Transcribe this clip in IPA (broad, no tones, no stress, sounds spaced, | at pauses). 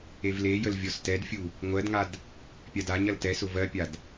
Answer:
e v l e j ə l vʲ ɔ s t ɛ d fʲ u | ŋʷ ɜ d ŋ a d | pʲ a d a ɲ ɐ l t ɛ s ʊ v ɜ pʲ a d